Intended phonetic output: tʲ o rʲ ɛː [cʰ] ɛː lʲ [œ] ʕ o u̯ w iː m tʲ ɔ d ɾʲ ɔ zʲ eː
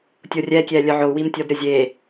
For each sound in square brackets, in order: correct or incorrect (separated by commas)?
incorrect, correct